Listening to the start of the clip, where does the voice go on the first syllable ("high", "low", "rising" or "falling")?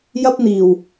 high